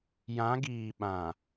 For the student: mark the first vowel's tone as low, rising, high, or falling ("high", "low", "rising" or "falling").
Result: rising